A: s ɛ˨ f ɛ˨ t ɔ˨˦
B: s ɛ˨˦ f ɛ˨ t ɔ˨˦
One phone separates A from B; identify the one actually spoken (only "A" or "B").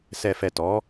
A